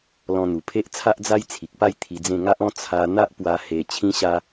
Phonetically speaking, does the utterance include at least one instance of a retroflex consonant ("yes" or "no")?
no